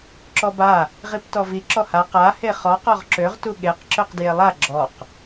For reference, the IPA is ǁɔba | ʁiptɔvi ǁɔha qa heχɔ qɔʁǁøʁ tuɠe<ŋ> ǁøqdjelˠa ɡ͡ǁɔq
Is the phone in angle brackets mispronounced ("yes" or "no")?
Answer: yes